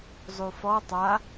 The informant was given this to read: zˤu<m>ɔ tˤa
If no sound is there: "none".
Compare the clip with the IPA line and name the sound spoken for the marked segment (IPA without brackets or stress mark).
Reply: f